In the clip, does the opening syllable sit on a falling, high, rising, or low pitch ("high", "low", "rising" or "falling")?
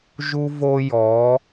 high